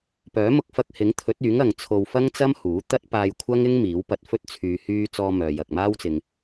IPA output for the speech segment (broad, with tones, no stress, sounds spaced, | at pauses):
p œː˨˥ m ʊ˧ k̚ f ɐ˧ k̚ h ɪ˨˥ ŋ t̪ʰ ɵ˨˥ t̚ yː˨˥ ŋ ɐ˨ ŋ t͡sʰ o˧ w f ɐ˥ ŋ t͡s ɐ˥ m h uː˨˥ t̪ ɐ˥ t̚ p aː˧ j kʷʰ ɐ˥ ŋ ɪ˥ ŋ m iː˨˥ w p ɐ˧ t̚ f ɵ˥ t̚ t͡sʰ yː˧ h yː˧ t͡s ɔː˧ m œː˨ j ɐ˨ k̚ m aː˥ w t͡s ɪ˧ ŋ